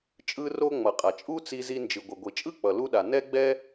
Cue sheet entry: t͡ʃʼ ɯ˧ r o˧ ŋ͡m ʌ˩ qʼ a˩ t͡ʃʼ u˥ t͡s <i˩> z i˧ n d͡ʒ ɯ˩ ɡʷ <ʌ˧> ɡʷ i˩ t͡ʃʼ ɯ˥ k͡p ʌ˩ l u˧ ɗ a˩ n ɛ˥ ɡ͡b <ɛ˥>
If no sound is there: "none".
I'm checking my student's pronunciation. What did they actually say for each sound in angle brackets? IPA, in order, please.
i˧, ʌ˩, ɛ˥

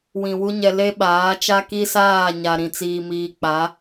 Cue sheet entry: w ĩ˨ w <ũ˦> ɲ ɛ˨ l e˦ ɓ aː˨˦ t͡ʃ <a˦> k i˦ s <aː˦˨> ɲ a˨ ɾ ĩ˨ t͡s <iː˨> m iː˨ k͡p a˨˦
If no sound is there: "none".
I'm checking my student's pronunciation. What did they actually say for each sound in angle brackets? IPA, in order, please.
u˦, a˦, aː˦˨, iː˨

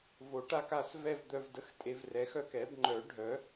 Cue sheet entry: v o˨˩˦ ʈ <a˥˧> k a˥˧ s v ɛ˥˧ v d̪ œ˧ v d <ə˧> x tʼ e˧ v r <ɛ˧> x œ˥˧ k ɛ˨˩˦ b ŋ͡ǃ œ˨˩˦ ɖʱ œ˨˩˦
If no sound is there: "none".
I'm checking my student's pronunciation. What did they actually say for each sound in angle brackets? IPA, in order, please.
a˥˧, ə˧, ɛ˨˩˦

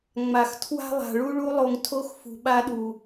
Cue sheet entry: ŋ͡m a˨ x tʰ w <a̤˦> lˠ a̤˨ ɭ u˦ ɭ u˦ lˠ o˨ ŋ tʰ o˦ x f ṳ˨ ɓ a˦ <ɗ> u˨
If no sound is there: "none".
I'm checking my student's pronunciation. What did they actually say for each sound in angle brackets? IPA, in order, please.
a̤˦, ɗ

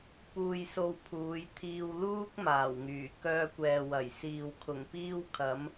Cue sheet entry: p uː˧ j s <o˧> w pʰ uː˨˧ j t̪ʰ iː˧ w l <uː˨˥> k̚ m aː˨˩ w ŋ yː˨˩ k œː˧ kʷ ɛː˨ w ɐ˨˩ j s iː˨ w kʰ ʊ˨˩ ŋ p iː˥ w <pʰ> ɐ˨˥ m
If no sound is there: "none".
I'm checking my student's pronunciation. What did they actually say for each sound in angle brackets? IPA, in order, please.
o˧, uː˥, kʰ

